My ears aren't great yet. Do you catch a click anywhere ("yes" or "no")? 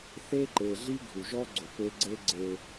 yes